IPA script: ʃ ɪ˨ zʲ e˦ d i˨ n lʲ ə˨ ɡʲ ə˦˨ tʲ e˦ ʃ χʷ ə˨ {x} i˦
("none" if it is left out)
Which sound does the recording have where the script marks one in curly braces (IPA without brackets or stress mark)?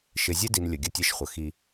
x